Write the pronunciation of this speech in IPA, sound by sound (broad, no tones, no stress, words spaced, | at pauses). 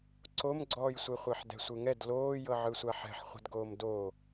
ǀomɡ͡ǀɔːjsʷeχʷɛħ dɛ̤sʷɯŋɛd loːjɤʕɯsʷa ħɛ̤ħχʷɛ̤dɡoːm do